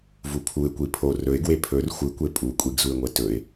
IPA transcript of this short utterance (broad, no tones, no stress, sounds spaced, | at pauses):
v u pʰ u ɪ̯ kʷ i pʰ o r ɵ ɪ̯ ɡ w e pʰ ɵ r xʷ ɨ kʷ e pʼ u kʷʼ i ɡ z u ɪ̯ ŋʷ e t ɵ ɪ̯